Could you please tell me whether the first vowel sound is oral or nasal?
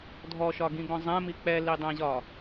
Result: oral